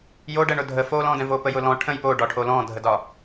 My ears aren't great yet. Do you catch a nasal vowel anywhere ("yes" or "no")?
yes